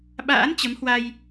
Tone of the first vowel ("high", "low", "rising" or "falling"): rising